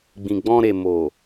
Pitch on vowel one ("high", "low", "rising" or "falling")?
low